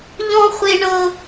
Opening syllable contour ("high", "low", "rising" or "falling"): high